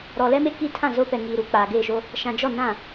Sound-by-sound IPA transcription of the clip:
ɾɔ˨lɛ˦me˦ ki˦ tʰã˦˨zo˦ pɛ˨ŋiː˨ɾu˨ k͡paː˨ɡeː˦˨ʃo˦ | ʃã˨d͡ʒɔ˦˨nã˦˨

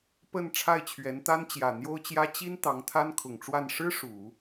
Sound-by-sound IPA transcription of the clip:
pə˥˧n ʈ͡ʂʰa˥˩ɪ̯t͡ɕʰɥɛ˧˥nt̪a˥n t͡ɕjä˨˩n̪jo˥ʊ̯t͡ɕjä˥ t͡ɕi˥n t̪ɑ˧˥ŋt̪ʰa˥nkʰʊ˨˩ŋʈ͡ʂwa˥˩n ʂɻ̩˥ ʂu˨˩˦

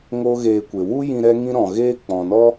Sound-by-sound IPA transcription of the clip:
ŋoː˦ɣeː˧kʷe˨ wu˦jĩ˧ ɾɛ˦ŋĩ˦ ɾɔ̃˨ɣeː˦ k͡pɔ̃˨nɔ˦

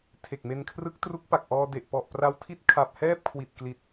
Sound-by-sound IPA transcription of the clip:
tʰe˨˩k̚me˧nkʰrɯ˦˥k̚tru˦˥k̚ pa˨˩k̚ʔɔː˧de˨˩ʔ pɔ˨˩ʔpra˧w tʰi˦˥t̚ kʰa˨˩p̚hɛː˥˩p̚kʰwi˨˩t̚ kli˨˩t̚

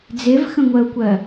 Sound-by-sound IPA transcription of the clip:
d͡zevxə̃ŋʷɜu̯kʷɜ

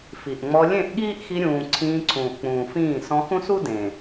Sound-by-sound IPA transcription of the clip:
fi˨ʔŋ͡mɔ˧ lʲẽ˦˨ʔɠiː˦ʔxi˧ɾʲũː˨ ǀʰĩː˧ǀʰũː˨ʔk͡pũː˨fĩː˦˨ sɔ̃˧xũ˦su˦ dẽ˨

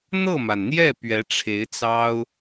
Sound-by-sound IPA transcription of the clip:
n̪ɤ˥˩ma˩nn̪jɛ˥˩ pɥɛ˧˥ʈ͡ʂʰe˧˥ɪ̯t͡sɑ˥ʊ̯

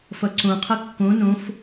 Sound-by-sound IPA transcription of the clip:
fʌǀõ qʰʌkːõ nõf

